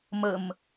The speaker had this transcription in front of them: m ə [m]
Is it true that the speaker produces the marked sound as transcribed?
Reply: yes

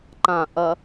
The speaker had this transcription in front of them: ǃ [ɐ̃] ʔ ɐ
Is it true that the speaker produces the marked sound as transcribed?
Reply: no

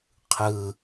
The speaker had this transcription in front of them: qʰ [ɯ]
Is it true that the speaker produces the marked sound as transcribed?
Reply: yes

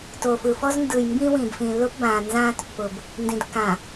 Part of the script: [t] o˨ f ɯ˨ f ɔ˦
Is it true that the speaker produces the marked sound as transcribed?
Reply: yes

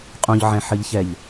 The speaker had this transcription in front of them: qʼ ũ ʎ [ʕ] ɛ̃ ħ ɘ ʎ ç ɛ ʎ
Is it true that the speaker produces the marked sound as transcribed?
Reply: yes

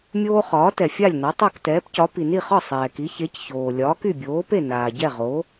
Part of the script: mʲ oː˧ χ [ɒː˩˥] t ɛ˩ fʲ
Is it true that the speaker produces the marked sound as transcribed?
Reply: yes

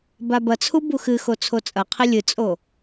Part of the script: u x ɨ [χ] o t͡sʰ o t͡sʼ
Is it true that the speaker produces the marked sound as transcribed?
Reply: no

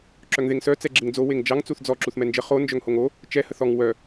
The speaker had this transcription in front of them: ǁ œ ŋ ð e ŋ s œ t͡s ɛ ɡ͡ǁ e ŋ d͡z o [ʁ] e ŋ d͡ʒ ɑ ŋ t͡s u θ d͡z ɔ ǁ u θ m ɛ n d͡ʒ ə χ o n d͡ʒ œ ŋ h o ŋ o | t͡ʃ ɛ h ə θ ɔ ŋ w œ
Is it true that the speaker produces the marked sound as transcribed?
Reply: no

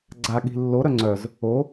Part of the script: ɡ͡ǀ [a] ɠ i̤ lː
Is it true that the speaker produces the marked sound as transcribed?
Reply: yes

